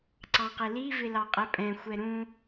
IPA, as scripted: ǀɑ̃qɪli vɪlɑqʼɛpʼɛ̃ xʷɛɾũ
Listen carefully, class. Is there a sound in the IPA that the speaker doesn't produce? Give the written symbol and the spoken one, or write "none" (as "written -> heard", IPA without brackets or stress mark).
none